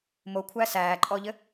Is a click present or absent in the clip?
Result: present